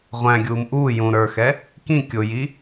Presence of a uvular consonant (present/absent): present